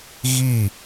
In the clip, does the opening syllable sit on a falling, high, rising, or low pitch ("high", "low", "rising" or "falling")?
falling